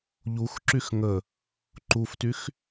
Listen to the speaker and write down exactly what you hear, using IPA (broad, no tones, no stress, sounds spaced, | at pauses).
ʎ u x ǁ y x ŋ ə | ǃ u f t y x